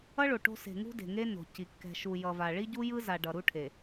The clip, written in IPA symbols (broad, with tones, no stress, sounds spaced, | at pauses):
ʌ˦ ɭ o˨ ʈ o̤˦ s e̤˨ ŋ ṳ˦ d e̤˨ ŋ e˦ n o̤˨ c i˨ kː ɛ̤˨ ʃ u˨ j ʌ˨ v a˨ ɭ i˦ ɟ u˦ j ɯ˦ z a˨ ɖ ʌ˨ ɾ u˦ ʈʰ e˨